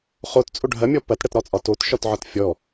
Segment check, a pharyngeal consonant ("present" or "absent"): present